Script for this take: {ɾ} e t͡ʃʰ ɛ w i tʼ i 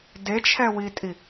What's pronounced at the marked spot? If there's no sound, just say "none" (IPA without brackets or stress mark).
d